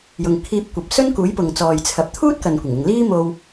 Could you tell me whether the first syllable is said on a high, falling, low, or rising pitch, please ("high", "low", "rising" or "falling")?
low